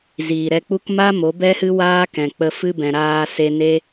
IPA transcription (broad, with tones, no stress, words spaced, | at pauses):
ziː˨ɾɛ˧k͡pu˦k ma˦mo˨˦ bɛ˦hɨ˦waː˦ kɛ̃˨k͡pə˧fɨ˦ bɛ̃˨ɾaː˧se˧ ne˦